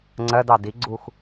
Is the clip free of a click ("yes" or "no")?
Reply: no